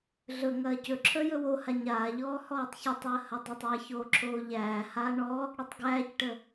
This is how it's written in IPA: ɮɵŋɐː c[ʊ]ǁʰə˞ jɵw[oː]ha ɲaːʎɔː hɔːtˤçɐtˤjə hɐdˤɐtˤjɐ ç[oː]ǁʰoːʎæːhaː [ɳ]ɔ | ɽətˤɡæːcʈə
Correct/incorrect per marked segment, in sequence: incorrect: ɵ, incorrect: o, correct, correct

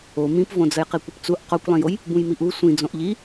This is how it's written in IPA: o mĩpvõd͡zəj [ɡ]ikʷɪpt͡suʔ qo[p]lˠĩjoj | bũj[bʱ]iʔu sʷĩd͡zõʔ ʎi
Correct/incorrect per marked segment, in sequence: incorrect: q, incorrect: kʷ, incorrect: m

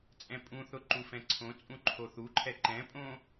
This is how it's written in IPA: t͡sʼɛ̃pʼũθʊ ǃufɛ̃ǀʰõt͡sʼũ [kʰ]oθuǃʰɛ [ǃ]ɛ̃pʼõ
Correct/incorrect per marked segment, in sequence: incorrect: ǃʰ, correct

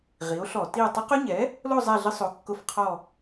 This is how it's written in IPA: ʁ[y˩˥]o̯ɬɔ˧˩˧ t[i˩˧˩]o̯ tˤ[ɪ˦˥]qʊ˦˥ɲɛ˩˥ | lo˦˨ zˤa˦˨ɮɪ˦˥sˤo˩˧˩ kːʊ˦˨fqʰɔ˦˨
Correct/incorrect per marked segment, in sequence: incorrect: i˩˥, incorrect: i˦˨, correct

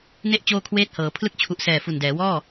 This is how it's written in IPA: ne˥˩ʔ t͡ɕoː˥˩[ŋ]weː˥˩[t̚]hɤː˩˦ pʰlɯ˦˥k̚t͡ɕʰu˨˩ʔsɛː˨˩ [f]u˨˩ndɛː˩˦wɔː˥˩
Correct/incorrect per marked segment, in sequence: incorrect: kʰ, correct, correct

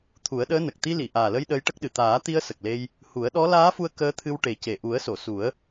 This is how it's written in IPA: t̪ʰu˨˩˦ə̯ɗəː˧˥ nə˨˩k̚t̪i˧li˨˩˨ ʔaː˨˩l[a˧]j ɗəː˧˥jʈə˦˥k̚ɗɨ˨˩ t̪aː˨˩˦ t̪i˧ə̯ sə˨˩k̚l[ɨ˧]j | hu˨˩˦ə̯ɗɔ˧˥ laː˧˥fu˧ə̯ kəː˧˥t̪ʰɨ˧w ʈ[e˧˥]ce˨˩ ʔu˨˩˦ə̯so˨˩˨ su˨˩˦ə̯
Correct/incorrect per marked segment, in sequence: incorrect: ə˧, incorrect: e˧, incorrect: e˨˩˦

